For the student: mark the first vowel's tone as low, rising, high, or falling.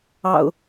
low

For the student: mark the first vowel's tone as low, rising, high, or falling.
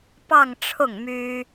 falling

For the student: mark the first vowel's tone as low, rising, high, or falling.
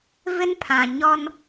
high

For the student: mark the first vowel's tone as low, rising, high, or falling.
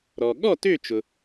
low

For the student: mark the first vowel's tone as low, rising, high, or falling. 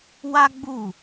high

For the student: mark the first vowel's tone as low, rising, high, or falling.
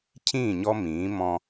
falling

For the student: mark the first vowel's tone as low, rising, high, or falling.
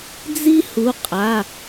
high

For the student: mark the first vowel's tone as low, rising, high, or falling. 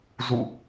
falling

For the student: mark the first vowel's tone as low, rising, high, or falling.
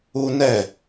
high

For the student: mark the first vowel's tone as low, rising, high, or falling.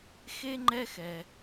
high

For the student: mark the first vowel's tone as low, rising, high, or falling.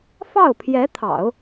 falling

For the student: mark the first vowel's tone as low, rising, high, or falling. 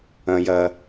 high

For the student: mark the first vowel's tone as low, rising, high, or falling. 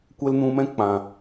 high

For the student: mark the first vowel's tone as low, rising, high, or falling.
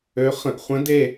rising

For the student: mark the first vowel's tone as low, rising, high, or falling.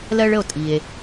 high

